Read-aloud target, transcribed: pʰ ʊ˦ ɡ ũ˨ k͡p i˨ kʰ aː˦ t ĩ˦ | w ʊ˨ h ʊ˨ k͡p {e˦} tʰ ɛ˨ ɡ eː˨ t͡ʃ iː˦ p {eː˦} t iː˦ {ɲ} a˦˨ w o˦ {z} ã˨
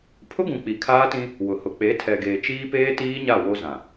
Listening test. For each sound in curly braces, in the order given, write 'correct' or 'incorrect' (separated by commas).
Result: incorrect, correct, correct, correct